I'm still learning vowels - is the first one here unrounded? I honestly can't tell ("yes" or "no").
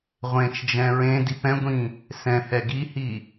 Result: yes